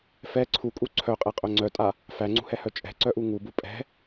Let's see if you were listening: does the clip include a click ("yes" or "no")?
yes